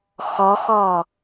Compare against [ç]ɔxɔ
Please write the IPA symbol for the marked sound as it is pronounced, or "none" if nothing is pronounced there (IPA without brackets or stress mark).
x